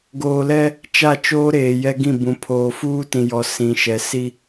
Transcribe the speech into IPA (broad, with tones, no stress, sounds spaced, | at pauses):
ɡ oː˨ l ɛ˦ | t͡ʃ a˦˨ t͡ʃ oː˦ ɾ eː˨ j ɛ˦ ɡ ĩ˦˨ b ũ˨ pʰ oː˨ f uː˦ t ĩ˨ j ɔ˨ s ĩ˨ ʃ ɛ˨ s i˦